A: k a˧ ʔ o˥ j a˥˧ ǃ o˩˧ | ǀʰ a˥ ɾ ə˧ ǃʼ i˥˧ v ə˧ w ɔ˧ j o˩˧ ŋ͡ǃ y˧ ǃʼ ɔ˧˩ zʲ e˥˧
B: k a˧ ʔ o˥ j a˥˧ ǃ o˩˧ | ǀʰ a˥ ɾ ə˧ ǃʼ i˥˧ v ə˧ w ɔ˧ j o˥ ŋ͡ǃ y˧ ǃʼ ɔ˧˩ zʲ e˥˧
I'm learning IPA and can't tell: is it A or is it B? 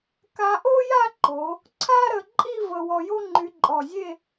B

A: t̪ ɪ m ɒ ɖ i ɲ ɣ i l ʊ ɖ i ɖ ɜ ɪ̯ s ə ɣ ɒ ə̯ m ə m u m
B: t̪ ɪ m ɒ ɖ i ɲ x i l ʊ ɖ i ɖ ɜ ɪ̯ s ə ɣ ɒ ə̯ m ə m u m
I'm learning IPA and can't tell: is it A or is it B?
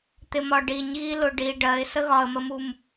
A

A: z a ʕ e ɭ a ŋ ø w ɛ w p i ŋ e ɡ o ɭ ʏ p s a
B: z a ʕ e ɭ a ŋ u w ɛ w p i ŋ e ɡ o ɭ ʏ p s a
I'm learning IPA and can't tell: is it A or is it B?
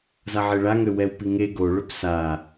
A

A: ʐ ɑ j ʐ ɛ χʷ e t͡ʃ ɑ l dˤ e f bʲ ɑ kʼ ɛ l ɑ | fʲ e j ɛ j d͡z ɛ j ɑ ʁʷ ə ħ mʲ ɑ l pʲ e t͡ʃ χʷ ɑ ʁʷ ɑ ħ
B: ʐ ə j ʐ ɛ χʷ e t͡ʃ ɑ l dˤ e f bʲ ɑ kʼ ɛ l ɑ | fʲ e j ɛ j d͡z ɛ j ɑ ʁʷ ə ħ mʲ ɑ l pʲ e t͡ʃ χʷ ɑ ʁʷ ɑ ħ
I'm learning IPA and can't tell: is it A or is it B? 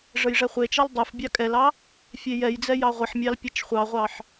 B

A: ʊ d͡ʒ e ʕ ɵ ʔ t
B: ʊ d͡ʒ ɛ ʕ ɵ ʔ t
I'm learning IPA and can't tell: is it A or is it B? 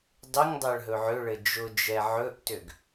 B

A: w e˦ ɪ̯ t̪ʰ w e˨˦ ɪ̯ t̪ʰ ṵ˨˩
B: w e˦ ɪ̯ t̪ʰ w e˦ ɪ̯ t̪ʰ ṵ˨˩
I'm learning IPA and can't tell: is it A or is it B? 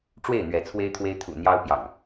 B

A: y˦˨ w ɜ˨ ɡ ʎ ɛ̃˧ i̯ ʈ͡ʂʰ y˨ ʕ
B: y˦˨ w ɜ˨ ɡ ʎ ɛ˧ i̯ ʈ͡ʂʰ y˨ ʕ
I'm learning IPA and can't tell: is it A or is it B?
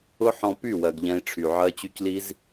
A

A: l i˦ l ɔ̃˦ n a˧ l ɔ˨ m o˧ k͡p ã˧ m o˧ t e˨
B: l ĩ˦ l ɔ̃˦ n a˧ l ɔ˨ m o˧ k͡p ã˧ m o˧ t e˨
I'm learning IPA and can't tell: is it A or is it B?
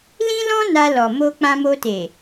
B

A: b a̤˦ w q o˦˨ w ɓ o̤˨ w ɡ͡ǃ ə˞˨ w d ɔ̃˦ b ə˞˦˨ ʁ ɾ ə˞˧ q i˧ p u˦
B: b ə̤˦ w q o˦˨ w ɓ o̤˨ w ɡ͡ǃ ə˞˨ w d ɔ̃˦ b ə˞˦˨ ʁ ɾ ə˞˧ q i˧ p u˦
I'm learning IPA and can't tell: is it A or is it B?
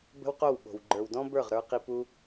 B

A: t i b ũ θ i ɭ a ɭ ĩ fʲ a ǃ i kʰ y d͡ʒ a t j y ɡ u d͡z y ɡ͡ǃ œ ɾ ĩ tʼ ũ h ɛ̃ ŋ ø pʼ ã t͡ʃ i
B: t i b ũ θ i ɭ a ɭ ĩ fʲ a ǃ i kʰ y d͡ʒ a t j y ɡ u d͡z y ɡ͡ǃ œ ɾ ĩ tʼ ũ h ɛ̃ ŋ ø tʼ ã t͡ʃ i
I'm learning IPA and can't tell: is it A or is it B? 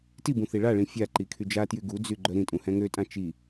B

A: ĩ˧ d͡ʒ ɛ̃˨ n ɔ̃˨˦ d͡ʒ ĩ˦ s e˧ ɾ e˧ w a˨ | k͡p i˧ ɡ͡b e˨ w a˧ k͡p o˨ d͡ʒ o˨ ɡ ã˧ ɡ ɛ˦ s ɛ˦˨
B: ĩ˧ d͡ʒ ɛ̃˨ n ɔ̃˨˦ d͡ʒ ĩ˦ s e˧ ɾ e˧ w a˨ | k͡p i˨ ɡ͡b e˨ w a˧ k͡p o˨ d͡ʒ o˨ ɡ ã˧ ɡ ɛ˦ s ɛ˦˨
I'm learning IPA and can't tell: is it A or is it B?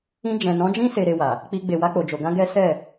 A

